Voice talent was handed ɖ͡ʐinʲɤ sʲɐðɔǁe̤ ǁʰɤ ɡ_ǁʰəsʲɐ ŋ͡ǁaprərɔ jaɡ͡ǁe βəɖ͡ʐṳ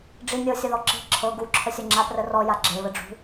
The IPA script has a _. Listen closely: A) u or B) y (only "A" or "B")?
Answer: A